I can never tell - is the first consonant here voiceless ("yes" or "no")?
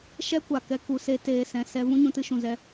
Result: yes